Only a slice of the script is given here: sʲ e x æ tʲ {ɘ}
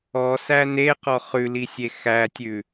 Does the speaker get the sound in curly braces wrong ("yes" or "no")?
yes